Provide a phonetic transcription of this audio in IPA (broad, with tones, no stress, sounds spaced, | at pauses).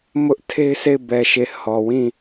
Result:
m ʊ˦ ʔ tʰ e˦ ɪ̯ sʰ e˦˨ ɪ̯ b ɛ˨ ʃ e˨ h ɔ˨ w ĩ˦˨